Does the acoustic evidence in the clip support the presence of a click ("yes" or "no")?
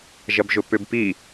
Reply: no